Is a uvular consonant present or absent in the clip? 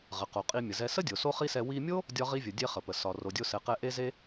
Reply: present